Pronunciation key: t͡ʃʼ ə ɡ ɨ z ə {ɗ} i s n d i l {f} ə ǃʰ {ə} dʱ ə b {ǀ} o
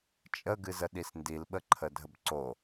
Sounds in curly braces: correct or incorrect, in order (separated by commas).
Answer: correct, incorrect, correct, correct